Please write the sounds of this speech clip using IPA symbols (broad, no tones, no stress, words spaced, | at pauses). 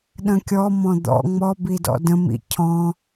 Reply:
ɗə̃kʲɔ mɔ̃d̪ɔ̰ ŋ͡mɔ bidɔ̰də̃ mḭcʰɔ̃